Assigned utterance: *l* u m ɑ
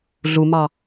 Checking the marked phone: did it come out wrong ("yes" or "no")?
yes